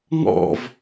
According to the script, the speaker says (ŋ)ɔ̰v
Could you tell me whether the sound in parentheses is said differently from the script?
no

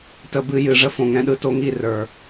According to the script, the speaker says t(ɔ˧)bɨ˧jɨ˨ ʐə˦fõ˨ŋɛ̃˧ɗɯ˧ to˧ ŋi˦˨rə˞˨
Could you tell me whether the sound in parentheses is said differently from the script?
yes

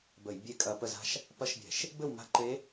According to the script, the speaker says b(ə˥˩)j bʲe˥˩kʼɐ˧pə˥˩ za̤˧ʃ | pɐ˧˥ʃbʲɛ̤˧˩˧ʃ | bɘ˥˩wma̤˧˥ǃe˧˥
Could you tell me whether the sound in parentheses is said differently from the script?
yes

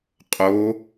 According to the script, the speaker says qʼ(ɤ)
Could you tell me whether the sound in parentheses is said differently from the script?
yes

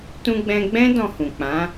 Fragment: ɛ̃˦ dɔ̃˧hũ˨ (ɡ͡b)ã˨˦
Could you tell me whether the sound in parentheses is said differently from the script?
yes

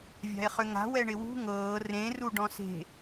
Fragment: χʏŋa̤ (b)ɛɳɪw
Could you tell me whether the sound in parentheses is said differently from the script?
yes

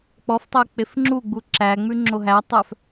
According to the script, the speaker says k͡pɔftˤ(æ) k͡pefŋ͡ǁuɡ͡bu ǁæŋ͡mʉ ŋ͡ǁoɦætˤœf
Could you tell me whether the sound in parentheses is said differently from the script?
yes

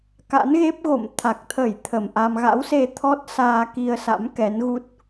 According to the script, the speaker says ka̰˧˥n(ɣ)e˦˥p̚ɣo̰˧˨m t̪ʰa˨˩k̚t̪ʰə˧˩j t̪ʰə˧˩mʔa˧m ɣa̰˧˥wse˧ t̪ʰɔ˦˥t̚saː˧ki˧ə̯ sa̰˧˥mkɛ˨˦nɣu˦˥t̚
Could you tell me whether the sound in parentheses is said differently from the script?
no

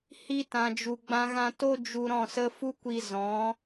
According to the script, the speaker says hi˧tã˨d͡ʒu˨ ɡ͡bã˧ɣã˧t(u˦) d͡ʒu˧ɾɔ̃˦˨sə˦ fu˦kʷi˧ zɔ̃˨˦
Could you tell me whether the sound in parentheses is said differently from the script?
yes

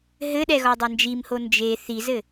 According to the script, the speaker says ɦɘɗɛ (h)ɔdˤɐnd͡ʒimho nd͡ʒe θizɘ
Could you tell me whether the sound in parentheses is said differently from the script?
yes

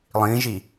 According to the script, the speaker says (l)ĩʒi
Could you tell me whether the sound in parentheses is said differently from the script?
yes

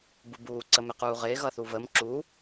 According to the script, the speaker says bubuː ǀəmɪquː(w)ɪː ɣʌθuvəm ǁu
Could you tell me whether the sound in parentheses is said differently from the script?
yes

